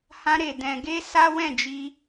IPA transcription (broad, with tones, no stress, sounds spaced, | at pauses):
h ã˧ ɾ e˨ d ɛ̃˨ ɡ e˧ s a˦ w ɛ̃˦˨ d͡ʒ i˧